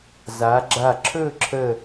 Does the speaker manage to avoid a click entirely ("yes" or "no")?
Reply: no